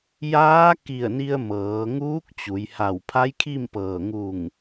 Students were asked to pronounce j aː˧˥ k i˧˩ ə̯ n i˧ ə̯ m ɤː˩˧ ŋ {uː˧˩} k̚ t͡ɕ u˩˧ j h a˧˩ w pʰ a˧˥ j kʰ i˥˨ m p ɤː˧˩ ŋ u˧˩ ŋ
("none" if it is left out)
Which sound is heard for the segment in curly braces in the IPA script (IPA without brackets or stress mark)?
uː˧˥